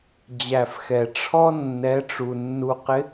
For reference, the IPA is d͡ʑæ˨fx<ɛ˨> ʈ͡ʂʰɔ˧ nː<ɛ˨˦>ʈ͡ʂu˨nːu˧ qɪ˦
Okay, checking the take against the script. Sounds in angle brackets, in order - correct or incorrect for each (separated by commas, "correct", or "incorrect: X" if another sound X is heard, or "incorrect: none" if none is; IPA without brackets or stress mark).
correct, correct